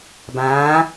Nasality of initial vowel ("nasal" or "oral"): nasal